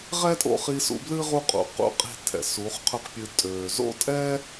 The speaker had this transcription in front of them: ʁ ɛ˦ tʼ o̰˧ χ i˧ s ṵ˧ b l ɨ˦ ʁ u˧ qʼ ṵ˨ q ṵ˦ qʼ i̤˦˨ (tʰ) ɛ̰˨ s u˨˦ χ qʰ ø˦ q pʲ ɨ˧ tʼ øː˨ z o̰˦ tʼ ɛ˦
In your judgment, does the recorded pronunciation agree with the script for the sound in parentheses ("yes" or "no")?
yes